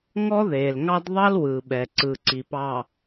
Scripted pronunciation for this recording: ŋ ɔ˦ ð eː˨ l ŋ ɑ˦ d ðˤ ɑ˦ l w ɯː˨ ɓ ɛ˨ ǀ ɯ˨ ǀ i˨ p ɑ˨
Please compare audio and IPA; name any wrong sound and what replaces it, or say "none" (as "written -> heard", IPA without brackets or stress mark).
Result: none